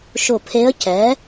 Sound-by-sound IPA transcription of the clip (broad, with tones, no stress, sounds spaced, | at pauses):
ʃ ʊ˧˩ pʰ e˧˥ ə̯ c ɛ˩˥